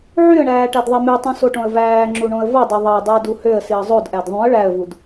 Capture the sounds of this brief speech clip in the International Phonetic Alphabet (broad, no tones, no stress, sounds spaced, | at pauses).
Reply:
ʕ y ə̯ ɳ æː ʈ æ d ðˤ i m y tˤ ũ s o ʈ õ ə̯ v æː ŋ͡ǁ u ɳ õ ə̯ v o dˤ ø ðˤ ɑ dˤ u ə̯ d u h ø ə̯ s i ə̯ zˤ o d ʔ æ d ðˤ ũ ə̯ ɭ æ ə̯ v u d